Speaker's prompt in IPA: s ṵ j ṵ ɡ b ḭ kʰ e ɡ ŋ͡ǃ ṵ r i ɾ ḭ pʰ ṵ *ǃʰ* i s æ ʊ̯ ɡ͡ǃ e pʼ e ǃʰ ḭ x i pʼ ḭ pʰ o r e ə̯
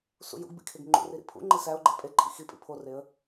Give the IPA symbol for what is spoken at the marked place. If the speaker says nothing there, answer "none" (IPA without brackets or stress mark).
ŋ͡ǃ